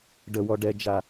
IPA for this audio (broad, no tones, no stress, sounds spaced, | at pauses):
ɖ ə w ɔ ɖ ɛ d͡ʒ a